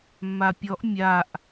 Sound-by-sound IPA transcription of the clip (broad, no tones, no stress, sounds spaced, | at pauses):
mː a pʲ ɔ ʔ mʲ a ʔ